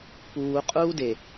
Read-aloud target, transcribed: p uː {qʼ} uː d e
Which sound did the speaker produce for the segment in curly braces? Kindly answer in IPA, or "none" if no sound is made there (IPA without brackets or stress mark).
qʼ